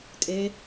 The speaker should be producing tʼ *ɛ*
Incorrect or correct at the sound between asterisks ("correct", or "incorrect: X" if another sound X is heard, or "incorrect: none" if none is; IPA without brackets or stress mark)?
incorrect: e